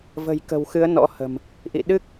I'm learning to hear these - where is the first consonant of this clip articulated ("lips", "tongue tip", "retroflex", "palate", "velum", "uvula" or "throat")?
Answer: lips